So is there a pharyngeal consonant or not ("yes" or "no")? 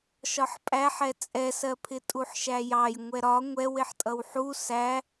yes